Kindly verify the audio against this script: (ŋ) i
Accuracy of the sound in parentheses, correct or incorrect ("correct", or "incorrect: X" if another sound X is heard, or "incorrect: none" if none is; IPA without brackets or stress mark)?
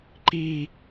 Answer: incorrect: ǃ